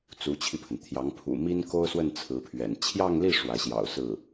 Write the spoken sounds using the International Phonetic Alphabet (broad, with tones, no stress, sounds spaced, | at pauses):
t͡s u˧˥ t͡ɕʰ i˧ pʰ ə˩ n t̪ʰ j ɑ˧˥ ŋ pʰ ṵ˨˩ m i˥ n k o˥ ʊ̯ s w ə˥˩ n t͡sʰ ɹ̩˧˥ pʰ ɥ ɛ̰˨˩ n t͡ɕʰ j ɑ˥˧ ŋ l i˥˩ ʂ w ä˧˥ ɕ j ɑ̰˨˩ ʊ̯ s ɹ̩˥˩